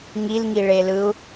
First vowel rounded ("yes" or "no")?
no